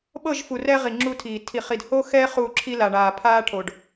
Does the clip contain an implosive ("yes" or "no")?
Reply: yes